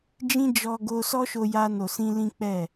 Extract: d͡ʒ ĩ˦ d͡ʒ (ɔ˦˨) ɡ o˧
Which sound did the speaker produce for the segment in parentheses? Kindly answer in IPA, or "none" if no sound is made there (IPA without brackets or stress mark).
ɔ˧